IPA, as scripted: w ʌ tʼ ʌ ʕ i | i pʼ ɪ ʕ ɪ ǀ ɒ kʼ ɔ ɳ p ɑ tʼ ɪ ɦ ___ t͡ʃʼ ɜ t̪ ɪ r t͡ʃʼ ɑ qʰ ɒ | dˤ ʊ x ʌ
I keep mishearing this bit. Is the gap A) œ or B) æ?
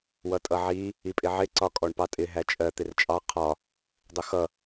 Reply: B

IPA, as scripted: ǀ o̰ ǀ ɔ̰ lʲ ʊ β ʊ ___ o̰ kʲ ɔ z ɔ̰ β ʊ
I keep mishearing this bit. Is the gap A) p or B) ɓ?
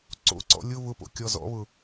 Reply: A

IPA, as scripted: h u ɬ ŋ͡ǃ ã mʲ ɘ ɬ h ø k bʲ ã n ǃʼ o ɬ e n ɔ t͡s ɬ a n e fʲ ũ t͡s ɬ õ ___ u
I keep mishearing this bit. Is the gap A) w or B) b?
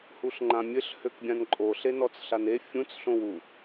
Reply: A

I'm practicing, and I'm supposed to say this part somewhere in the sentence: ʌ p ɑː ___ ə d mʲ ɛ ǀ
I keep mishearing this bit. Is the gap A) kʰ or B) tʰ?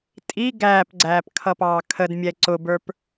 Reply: A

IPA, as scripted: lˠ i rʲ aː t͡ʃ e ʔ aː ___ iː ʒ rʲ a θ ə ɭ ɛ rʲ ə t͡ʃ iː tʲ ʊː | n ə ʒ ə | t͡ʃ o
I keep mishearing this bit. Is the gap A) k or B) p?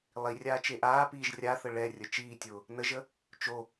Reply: B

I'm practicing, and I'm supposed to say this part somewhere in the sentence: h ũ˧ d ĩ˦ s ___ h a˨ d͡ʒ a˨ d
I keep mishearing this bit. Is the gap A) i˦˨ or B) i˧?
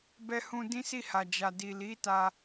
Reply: A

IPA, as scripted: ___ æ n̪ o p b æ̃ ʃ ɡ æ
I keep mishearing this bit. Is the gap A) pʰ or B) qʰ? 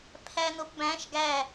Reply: A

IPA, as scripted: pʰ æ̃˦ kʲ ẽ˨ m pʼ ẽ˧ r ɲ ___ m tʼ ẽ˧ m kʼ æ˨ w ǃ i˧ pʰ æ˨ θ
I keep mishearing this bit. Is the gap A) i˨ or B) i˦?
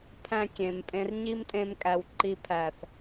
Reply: B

